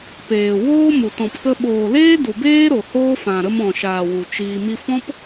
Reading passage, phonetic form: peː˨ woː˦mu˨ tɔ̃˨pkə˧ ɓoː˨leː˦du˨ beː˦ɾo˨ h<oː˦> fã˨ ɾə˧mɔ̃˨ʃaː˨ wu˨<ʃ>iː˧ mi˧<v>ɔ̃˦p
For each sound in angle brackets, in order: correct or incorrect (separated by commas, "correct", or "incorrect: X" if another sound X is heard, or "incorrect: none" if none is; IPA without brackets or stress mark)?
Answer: correct, incorrect: t͡ʃ, incorrect: f